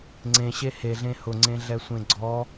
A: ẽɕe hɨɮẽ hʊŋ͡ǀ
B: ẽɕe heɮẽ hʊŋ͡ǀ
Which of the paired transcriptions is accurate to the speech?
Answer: B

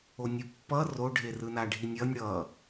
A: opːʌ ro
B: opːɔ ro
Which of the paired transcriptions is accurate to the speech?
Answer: A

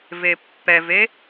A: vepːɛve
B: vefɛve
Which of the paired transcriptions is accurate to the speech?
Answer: A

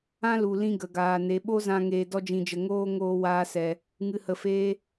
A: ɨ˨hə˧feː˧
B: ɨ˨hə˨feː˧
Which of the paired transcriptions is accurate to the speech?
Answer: B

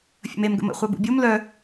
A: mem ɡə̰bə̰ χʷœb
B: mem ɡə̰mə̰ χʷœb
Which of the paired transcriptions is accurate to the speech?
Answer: B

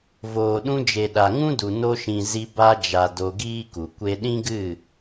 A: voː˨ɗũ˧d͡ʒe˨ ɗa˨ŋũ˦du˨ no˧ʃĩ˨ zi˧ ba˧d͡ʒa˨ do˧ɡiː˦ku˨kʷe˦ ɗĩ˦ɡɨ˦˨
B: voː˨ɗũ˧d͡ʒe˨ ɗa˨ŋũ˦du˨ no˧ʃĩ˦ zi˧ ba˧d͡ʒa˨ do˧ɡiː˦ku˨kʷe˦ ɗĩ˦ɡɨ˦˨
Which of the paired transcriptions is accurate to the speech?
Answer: A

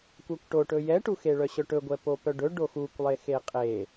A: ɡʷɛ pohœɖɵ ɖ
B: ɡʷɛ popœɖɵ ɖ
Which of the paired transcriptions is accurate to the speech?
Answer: B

